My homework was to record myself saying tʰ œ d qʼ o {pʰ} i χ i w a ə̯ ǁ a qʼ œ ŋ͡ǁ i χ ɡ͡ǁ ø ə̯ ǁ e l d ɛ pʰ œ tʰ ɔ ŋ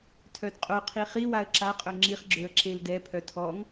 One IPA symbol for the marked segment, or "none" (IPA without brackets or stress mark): qʰ